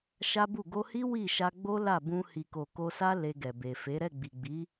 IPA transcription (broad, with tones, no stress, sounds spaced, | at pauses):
ʃ a˦ b u˦˨ ɡ o˧ h i˦ w i˦˨ ʃ a˧ ɡ͡b o˦ l a˦˨ b ũ˧ h i˨ k o˨ k o˧ s a˦ l e˧ ɡ ɛ˨ b e˨ f e˨˦ ɾ ɛ˦˨ ɡ͡b i˨ ɡ͡b i˨˦